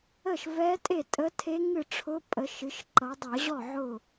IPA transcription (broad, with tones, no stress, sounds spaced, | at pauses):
ə˥˩ ʃ v ɛ˧˥ tʼ e˥˩ tʼ ə˧˥ tʰ e˧˥ ŋ ɨ˥˩ ʈ͡ʂʰ ʊ˧˥ pʼ ə˩˧ ʃ ɨ˩˧ ʃ ǃ ʌ˩˧ dˤ ʌ˧˩˧ ʑ ɔ˥˩ ʕ ʊ˥˩